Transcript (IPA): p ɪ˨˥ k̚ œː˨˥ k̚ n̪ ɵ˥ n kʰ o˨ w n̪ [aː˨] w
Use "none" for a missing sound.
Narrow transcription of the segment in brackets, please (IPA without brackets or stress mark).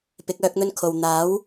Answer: aː˨˥